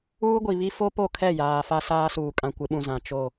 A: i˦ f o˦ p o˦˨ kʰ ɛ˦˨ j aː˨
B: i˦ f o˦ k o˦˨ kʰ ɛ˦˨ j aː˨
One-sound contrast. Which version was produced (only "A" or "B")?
A